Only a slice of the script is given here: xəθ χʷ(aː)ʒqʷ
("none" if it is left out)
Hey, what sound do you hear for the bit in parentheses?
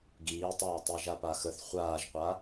aː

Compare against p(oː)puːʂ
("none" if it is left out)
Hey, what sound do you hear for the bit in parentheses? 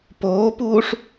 oː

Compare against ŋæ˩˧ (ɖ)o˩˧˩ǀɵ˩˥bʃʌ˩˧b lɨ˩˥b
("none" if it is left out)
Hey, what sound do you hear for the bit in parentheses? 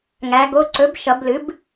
ɡ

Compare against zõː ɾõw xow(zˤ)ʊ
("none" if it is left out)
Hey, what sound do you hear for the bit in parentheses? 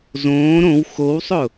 sˤ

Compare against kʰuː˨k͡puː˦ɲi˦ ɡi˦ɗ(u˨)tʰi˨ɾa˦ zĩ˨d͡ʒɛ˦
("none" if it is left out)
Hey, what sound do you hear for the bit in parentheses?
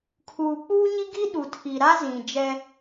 u˨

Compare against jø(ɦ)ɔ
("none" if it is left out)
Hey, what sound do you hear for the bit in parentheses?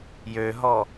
ɦ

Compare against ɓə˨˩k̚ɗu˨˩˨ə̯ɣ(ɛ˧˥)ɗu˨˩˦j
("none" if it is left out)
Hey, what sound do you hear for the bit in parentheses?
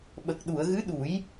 ɨ˧˥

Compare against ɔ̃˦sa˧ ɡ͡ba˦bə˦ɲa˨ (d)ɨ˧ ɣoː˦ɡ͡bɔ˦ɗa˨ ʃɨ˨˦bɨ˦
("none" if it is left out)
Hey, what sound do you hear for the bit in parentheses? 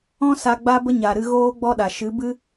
ɾ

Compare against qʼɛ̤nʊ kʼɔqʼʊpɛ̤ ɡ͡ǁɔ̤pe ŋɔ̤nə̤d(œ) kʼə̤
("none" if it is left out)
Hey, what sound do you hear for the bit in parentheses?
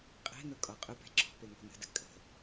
ə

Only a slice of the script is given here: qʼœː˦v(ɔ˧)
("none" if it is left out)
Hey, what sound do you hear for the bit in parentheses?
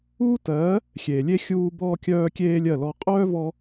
ɔ˧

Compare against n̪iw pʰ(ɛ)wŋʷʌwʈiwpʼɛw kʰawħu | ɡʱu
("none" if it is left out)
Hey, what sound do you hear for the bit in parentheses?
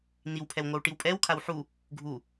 ɛ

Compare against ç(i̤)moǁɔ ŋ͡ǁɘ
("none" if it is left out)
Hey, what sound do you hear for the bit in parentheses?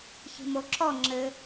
i̤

